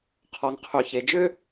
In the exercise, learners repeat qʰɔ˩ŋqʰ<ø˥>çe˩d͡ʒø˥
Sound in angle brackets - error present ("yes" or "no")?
yes